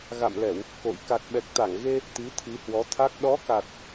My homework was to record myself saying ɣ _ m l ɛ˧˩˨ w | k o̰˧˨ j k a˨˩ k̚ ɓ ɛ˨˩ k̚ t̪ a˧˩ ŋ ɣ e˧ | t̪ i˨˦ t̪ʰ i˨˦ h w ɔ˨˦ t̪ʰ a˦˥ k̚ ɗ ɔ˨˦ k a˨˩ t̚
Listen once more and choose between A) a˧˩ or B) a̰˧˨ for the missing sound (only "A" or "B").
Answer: B